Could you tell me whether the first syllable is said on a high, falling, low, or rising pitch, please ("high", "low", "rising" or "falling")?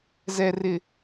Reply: low